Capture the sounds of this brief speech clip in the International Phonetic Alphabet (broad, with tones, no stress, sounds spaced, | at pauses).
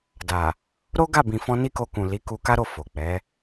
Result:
d a˨ | ɾ o˦ ɡ a˦˨ b ĩ˨ f ɔ̃˧ n i˦ k o˧ k ũ˨ l i˨˦ k u˧ k a˦ ɾ o˦˨ f o˨ k͡p ɛ˨˦